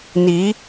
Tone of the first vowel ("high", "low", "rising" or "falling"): rising